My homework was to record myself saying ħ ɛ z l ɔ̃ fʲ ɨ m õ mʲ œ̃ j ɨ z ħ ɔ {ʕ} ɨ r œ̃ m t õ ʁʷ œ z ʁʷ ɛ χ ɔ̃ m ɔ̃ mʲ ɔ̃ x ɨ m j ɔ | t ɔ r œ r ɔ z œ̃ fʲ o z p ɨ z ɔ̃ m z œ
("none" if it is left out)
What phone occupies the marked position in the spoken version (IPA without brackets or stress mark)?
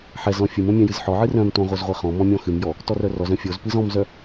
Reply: ʕ